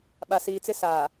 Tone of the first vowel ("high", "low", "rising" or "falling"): low